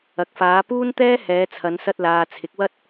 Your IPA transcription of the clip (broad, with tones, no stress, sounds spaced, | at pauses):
ɐ˨ k̚ f aː˨˧ p uː˥ n t̪ ɛː˥ h ɛː˨˧ t͡sʰ ɐ˨˧ n s ɐ˧ t̚ l aː˨ t͡sʰ ɪ˨˥ k̚ w ɐ˥ t̚